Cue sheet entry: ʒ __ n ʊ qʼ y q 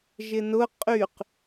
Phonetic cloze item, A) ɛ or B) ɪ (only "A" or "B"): B